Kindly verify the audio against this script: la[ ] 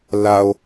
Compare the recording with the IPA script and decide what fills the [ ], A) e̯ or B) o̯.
B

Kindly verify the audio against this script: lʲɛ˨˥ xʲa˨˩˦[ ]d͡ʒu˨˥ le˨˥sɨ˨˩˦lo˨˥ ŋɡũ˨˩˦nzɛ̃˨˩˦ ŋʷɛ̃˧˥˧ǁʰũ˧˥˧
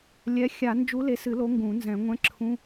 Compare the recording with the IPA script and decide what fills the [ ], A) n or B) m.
A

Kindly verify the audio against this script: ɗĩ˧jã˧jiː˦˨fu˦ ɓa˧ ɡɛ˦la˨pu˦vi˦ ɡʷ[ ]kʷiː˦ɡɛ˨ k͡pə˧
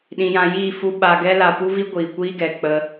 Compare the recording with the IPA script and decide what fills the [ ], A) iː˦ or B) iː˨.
B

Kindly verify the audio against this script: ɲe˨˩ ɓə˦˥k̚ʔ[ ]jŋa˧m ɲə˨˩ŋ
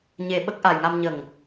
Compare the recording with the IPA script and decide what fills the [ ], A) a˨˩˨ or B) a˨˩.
B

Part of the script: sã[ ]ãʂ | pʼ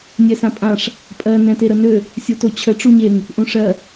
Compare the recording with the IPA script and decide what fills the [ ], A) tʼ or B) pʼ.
B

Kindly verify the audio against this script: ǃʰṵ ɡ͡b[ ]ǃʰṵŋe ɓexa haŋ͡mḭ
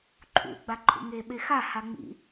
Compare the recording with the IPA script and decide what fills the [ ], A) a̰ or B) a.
B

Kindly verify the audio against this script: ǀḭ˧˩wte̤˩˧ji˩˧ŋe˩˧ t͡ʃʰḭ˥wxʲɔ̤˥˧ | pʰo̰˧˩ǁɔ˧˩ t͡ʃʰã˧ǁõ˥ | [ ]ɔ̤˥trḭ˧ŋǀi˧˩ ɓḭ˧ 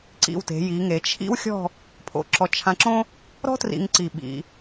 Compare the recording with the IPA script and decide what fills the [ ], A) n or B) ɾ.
B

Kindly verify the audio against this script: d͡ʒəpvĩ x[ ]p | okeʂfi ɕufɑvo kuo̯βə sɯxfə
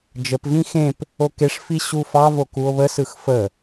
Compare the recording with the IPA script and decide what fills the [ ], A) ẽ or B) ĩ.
A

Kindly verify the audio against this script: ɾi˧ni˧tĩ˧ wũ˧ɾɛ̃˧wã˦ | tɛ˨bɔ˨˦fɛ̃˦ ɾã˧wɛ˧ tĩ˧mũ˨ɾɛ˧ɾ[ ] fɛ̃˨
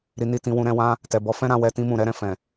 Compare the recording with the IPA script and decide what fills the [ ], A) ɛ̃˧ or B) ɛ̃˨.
B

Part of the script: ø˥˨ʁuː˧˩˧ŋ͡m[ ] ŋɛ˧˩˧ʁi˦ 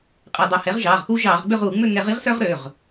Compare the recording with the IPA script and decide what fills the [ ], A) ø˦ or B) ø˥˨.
B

